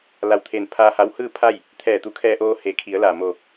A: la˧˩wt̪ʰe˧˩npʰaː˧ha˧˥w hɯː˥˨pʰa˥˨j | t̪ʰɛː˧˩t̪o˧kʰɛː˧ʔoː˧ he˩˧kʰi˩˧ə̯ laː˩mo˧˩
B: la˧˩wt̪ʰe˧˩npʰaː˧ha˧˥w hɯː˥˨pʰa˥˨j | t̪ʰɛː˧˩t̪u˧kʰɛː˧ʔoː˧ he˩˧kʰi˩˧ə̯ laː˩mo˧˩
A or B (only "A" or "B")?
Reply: B